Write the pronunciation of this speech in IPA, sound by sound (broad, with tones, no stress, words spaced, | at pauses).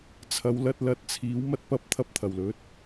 t͡sʰɐ˨˧wlɐ˧t̚lɐ˧t̚t͡sʰiː˨˥w mɐ˥t̚pɐ˥p̚ t̪ʰɐ˥p̚t̪ʰɐ˨˩wlɵ˨˥t̚